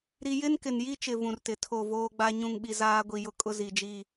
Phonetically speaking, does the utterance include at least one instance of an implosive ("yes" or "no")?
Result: yes